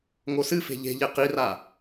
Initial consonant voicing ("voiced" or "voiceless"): voiced